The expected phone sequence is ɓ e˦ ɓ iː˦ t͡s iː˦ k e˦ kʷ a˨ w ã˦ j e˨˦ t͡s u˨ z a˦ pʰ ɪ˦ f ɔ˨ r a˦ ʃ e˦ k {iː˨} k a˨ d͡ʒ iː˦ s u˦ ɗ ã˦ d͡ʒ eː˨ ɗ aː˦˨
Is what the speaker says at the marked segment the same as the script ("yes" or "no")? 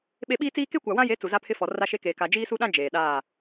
no